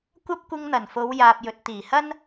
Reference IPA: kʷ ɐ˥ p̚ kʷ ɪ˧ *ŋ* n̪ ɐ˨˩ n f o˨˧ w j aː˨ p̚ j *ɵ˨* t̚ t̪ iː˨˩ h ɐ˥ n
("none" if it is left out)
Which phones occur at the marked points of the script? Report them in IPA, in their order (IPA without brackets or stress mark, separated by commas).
ŋ, ɵ˨